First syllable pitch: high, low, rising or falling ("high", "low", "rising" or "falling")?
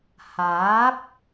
rising